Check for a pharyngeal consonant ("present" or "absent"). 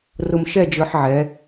present